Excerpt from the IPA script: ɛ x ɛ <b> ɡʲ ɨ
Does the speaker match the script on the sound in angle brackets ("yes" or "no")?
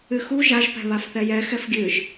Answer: no